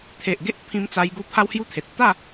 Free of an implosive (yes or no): yes